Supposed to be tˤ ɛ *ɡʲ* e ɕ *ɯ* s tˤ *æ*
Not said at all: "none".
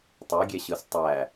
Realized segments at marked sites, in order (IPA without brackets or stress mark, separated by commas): ɡʲ, ɯ, æ